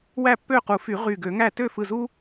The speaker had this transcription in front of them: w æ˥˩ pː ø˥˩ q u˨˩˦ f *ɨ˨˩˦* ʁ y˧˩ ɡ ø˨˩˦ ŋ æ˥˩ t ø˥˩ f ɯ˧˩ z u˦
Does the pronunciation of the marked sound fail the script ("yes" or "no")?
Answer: yes